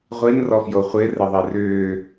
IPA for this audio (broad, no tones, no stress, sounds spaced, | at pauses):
ʁʷ i n r ɔ f j o χʷ ɪ r ɪ ðˤ i r ʏː